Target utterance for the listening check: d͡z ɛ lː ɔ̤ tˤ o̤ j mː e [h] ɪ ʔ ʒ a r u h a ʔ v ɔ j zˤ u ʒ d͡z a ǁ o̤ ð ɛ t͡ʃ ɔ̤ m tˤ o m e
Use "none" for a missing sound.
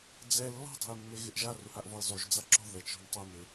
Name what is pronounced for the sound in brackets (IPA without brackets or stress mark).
ɣ